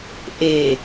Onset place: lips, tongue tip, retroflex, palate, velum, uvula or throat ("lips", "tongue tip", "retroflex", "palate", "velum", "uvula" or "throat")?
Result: throat